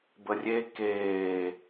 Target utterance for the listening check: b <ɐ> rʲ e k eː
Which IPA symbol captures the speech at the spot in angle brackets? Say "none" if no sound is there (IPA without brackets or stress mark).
ə